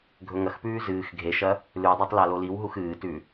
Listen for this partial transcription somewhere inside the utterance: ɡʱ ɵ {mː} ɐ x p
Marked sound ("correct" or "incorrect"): incorrect